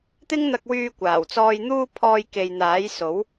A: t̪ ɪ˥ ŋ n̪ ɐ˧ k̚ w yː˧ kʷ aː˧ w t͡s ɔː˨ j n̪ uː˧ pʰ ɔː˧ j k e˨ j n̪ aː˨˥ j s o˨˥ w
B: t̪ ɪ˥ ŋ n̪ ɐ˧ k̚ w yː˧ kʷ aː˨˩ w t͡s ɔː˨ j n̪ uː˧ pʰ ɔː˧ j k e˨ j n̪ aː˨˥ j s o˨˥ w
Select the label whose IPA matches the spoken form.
B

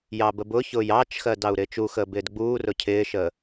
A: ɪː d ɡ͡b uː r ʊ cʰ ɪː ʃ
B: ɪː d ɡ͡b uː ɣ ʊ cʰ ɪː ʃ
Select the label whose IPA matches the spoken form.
A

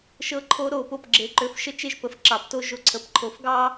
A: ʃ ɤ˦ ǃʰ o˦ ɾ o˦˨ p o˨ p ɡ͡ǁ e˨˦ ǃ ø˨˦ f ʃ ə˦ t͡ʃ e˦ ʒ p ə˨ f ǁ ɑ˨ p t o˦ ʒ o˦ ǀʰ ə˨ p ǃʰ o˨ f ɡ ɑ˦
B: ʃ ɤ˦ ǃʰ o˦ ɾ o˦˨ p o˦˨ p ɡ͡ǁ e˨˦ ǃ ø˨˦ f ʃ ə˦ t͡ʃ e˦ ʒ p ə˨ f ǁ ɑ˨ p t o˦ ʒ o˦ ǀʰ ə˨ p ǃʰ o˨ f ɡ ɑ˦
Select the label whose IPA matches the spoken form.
B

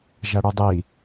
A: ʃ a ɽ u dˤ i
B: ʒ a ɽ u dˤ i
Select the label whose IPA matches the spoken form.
B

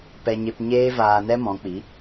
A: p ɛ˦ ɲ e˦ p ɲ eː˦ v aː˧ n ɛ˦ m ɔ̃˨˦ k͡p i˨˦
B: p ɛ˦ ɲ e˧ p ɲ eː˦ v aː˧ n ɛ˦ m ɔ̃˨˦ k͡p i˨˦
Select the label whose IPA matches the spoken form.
A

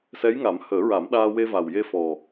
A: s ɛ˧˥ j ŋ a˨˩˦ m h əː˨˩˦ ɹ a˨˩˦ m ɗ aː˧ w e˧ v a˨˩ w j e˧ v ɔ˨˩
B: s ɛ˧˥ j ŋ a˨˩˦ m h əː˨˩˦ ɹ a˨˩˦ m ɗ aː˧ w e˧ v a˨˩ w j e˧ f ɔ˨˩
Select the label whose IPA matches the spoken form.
B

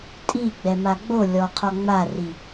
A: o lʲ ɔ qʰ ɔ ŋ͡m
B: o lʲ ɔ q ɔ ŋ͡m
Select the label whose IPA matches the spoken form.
A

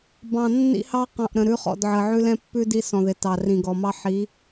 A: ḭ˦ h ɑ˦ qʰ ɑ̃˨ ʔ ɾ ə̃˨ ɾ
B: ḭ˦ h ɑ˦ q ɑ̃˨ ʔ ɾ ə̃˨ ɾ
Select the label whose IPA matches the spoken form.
B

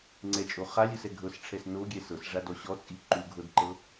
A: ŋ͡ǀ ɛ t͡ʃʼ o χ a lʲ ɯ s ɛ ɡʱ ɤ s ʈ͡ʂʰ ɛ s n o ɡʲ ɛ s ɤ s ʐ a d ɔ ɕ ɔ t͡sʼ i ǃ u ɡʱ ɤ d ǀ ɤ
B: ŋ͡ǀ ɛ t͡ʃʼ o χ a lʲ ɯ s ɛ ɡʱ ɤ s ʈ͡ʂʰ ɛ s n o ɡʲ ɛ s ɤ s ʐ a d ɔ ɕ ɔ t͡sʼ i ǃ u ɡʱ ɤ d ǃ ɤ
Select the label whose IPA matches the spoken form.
B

